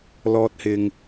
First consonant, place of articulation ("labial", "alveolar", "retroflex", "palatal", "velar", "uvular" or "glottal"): alveolar